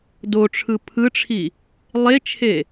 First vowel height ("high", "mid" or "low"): mid